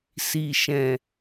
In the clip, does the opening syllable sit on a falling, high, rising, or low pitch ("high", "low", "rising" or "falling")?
low